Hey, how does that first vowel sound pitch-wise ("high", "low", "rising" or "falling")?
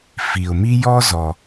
low